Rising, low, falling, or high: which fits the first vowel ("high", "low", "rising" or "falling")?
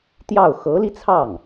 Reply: falling